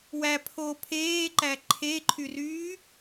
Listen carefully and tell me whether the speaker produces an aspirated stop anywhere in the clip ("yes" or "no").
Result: yes